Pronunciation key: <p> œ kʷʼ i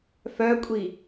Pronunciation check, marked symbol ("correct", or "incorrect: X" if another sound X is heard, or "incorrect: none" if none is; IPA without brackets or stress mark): incorrect: f